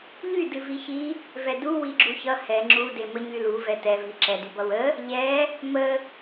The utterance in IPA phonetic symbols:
ʎ y d ɨ v i ç i | v ɛ d u w i ɡ͡ǁ u ç ʌ h ɛ ŋ͡ǁ u d e m ə ɲ y l u v ɛ t ɛ v i ǁ ɛ d y b ʌ w ə | ʎ ɛ | m ə

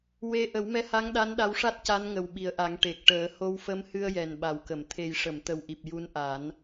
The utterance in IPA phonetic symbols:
w e˧ ʔ ə˨˩˦ w m ɛ˧˥ h a˧˥ ŋ ɗ a˧˥ n ɗ a˧˥ w ʂ a˦˥ t̚ c a˧˥ n ŋ ə˨˩ w ɓ i˨˩ ə̯ ʔ a˨˩˦ ŋ ʈ e˨˩ k̚ ʈ əː˨˩˦ h o˧ w f ə˧ m h ɨ˧ ə̯ j ɛ˨˩ n ɓ a˨˩ w k ə˨˩˨ m t̪ʰ e˨˩ j ʂ ə˨˩˨ m t̪ ə˨˩ w ʔ i˨˩ p̚ j u˧˥ n ʔ a˨˩˦ n

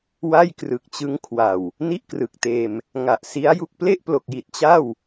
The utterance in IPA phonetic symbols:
w a˥˩ j k r ɯ˨˩ k̚ t͡ɕ ɯ˦˥ ŋ kʰ w a˨˩ w | n i˥˩ ʔ k r ɯ˨˩ k̚ t eː˧ m | ŋ a˨˩ ʔ s i˦˥ a̯ j u˥˩ k̚ p l e˥˩ ʔ p l o˨˩ k̚ j i˨˩ t̚ t͡ɕ a˥˩ w

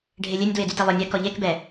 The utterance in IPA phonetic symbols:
ɖʱ e lʲ e nʲ d w e d y t i lˠ ɵ nʲ ɛ k ɔ ʎ e k b ɛ

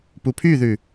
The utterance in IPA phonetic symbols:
p u pʰ y ð ʉ

